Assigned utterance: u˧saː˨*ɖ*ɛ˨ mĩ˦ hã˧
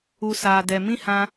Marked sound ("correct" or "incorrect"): incorrect